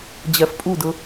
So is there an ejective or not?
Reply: yes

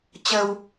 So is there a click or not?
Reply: no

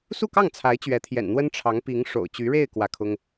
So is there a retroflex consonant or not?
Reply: yes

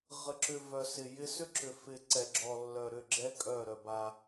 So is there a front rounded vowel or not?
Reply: yes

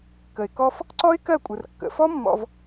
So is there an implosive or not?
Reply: no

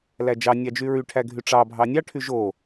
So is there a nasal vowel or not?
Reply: no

